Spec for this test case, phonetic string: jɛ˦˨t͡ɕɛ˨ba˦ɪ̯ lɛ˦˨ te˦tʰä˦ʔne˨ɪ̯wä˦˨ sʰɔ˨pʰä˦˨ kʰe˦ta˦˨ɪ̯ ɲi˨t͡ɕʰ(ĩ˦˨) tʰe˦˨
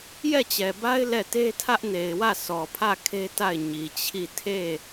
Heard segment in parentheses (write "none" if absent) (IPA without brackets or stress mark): i˦˨